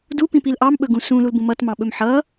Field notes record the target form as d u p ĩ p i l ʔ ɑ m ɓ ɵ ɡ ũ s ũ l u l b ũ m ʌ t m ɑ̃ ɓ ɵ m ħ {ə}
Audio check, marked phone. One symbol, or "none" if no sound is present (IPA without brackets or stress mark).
ʌ